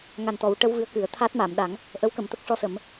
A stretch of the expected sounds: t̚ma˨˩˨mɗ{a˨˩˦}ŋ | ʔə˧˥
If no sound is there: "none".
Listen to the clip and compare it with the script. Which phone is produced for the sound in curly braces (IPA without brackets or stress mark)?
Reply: a˨˩˦